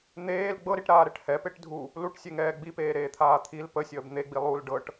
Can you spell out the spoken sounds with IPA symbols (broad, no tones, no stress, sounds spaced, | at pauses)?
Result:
n̪ eː l ɡ͡b ɤ ɾ i ʈ ɾ aː ɾ ɛ ʈ h ɛ p e ʈ dʱ u | l u ʈ sʲ e ŋ ɛː ɡ͡b i p eː ɾ eː t̪ʰ aː t̪ʰ i l p ə sʲ əː b n̪ e ɡ͡b i lˠ u l ɖ ɤ ʈ